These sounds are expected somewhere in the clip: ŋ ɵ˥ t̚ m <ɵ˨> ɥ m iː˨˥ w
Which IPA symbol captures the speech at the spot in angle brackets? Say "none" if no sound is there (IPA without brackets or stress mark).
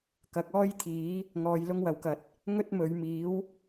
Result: ɵ˨˧